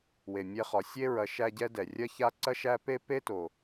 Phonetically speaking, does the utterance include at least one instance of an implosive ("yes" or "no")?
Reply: no